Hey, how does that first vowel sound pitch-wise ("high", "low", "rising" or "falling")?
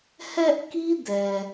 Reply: high